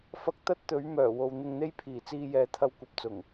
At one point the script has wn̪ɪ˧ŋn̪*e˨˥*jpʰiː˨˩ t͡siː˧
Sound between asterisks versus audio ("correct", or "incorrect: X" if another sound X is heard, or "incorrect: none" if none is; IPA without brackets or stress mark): incorrect: e˥